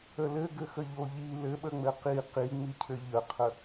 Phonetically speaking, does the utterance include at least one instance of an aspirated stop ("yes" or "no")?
yes